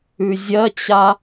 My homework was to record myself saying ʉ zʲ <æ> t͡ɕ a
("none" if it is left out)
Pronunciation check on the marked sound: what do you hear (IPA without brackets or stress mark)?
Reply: ɜ